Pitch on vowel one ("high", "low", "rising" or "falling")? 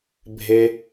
high